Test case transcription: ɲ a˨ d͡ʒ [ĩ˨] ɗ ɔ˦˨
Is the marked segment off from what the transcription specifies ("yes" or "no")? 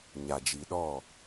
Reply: yes